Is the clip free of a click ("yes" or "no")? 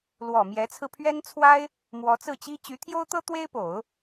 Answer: yes